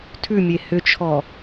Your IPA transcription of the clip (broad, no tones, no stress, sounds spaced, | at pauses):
tʰ ʉ mʲ e h ʏ t͡ʃʰ ɔ